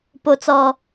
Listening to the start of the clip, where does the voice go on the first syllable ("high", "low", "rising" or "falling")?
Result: low